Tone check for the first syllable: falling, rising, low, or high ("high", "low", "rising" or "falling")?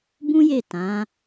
high